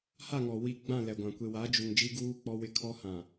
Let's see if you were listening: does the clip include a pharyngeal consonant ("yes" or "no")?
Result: no